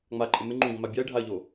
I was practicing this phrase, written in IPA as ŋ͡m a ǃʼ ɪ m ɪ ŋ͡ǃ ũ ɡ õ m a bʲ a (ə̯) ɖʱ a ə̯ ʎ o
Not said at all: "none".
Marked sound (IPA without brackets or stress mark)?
ɪ̯